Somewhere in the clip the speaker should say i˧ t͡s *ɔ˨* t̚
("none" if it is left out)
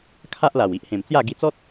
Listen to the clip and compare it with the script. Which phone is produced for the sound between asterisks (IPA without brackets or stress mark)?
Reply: ɔ˦